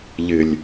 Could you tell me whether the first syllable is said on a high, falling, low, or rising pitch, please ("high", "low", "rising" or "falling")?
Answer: low